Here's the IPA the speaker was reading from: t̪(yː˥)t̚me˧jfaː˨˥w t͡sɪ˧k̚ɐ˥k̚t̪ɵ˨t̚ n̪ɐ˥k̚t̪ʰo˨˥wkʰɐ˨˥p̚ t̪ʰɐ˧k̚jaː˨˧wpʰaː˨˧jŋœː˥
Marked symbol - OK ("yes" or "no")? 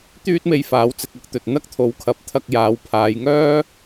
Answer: yes